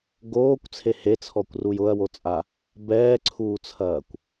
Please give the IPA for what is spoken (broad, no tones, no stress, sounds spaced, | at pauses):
ɡ oː kʷ t͡sʰ e h e t͡sʰ ɔ kʷ r u j ʊ ɐ̯ w o t͡sʼ a | b ɛː ǀʰ uː t͡sʰ ɐː kʷ